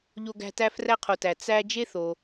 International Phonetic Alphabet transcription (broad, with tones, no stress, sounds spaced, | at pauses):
ʎ o˦ ɡ æ̤˦ t æ˥ f r æ˥ qʰ o˨ t æ˩ t͡s æ˥ d͡ʒ e˥ θ o˩